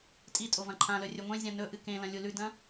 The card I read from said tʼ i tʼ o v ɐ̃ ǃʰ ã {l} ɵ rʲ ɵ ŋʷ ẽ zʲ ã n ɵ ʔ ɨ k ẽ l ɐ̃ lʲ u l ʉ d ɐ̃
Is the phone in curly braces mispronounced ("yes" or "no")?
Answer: no